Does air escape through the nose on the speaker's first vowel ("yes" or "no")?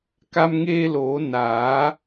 no